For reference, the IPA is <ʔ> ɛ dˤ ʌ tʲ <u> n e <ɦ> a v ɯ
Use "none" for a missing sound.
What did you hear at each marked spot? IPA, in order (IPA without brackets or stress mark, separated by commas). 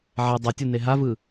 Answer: ʕ, u, ɦ